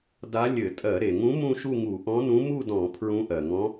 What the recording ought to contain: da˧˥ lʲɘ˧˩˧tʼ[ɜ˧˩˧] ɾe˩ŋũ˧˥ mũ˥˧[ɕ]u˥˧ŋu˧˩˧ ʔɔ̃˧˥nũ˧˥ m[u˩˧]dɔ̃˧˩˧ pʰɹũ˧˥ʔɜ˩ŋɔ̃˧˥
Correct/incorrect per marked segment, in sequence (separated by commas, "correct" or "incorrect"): correct, incorrect, incorrect